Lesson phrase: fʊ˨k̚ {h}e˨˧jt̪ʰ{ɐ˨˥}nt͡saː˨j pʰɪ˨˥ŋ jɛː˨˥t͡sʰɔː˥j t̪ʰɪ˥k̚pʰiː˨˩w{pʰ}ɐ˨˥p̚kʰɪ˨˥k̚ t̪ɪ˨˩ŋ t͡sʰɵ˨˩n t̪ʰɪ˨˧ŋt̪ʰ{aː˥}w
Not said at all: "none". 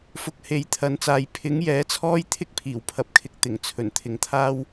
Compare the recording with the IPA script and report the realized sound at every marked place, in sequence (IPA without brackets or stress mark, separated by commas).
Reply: h, ɐ˨˥, pʰ, aː˥